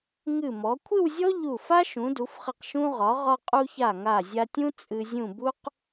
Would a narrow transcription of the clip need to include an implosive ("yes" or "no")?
no